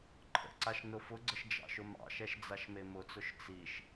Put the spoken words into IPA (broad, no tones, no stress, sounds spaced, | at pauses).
ǃʰ ə̰ ǀ a ʃ n ʊ f ʊ ɡ͡ǀ ə ʃ d͡ʒ ɑ̰ ʃ ʊ m ɑ̰ ʃ ɛ ʃ d͡z a ʃ m e m ʊ t͡s ʊ ʃ t͡s i ʃ